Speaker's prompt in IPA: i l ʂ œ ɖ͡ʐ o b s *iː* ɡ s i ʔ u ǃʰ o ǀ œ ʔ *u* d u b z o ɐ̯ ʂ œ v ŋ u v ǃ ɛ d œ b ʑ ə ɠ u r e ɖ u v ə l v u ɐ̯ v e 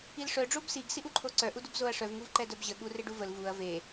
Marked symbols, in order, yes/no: no, yes

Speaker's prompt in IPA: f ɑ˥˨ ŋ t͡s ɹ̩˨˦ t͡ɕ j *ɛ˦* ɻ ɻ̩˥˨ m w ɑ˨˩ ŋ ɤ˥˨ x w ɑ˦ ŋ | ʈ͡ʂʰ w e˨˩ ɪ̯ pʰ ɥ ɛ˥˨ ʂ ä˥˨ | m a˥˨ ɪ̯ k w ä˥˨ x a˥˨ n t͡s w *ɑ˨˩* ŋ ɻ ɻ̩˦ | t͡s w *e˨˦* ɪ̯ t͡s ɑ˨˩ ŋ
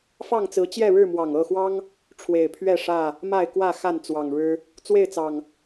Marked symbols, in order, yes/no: no, yes, no

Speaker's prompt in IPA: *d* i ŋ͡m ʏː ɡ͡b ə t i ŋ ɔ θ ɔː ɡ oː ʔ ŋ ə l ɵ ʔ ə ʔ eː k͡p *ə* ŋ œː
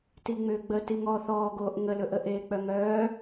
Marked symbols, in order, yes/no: no, no

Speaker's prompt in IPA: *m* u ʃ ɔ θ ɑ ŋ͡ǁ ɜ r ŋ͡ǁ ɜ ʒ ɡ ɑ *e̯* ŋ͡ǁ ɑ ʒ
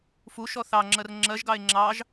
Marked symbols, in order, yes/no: no, yes

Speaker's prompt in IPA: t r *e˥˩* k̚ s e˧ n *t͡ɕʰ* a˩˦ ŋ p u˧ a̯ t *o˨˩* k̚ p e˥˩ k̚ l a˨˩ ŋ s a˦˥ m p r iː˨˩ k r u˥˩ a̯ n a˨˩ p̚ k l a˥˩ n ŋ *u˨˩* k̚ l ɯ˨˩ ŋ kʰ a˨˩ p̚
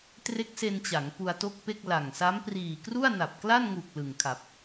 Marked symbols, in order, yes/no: no, no, no, yes

